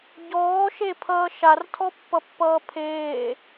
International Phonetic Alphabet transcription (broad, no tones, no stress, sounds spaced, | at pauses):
ɟ ɔː ʃ e pʰ ʌː ʃ a r tʰ ɔ pː ʌ pː ʌː pʰ eː